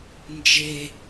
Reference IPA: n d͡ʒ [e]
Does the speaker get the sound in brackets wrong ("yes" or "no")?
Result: no